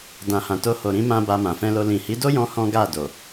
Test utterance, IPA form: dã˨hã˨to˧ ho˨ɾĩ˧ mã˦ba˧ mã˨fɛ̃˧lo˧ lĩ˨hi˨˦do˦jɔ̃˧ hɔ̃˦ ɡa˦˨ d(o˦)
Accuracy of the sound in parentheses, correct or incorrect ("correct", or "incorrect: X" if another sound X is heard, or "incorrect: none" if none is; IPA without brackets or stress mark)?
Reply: incorrect: o˨